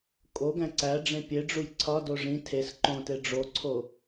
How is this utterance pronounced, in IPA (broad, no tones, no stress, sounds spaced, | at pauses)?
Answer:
kʼ o ɡ æ̃ ǀ æ ɖ͡ʐ ẽ pʲ e ɖ͡ʐ u j ǀʰ ɒ d o ʐ ĩ tʰ e s ǃ õ t e ɖ͡ʐ o ǀʰ o